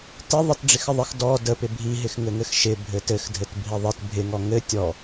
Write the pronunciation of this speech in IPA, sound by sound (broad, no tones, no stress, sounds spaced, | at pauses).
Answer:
t ɪ ðˤ ɪ t ɖ͡ʐ ɪ x ɪ ðˤ ɪ x d ɔ d ə p ɪ bʱ i ɦ ɪ x ŋ ɘ ŋ ɘ x ʃ ɪ bʱ ɘ t ɘ x dʱ ɘ t bʱ i ðˤ ɘ t bʱ ɪ ŋ ɔ ŋ ɘ tʲ ɔ